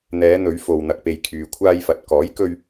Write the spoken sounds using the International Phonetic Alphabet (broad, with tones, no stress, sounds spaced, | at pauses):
n̪ ɛː˨˧ n̪ ɵ˨˧ ɥ f o˨ w n̪ ɐ˨ k̚ p e˨ j kʰ yː˨ kʷʰ aː˧ j f ɐ˨ t̚ k ɔː˨˥ j k ɵ˧ ɥ